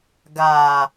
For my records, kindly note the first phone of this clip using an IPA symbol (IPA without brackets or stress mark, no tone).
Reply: ɡ